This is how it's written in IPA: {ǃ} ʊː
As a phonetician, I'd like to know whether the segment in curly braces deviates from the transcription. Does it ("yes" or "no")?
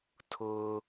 yes